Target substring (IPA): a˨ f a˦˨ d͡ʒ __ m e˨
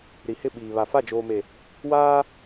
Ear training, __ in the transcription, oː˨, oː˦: oː˨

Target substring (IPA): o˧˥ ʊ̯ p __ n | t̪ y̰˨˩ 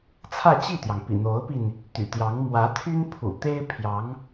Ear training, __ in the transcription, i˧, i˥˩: i˧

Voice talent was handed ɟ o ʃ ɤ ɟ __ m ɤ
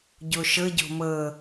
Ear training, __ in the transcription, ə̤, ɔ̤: ɔ̤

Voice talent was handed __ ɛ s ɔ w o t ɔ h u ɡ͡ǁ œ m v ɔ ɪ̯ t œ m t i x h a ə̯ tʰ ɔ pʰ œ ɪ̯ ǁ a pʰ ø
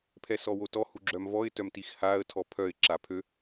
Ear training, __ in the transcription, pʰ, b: pʰ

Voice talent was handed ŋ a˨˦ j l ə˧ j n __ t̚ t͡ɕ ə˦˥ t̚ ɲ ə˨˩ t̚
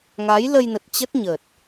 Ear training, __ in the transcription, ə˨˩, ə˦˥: ə˨˩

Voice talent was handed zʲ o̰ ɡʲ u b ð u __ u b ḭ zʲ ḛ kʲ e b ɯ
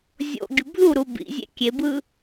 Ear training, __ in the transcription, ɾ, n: ɾ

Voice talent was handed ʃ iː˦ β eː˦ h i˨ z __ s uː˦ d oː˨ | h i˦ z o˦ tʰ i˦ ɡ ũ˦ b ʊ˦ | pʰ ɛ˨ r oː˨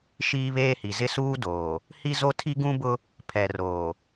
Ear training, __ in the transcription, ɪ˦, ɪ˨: ɪ˦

